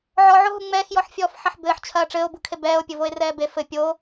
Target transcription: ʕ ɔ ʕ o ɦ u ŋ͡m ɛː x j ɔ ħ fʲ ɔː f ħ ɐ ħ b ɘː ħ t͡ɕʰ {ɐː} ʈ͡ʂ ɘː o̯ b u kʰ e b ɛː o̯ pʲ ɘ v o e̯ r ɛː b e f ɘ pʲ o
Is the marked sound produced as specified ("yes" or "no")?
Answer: yes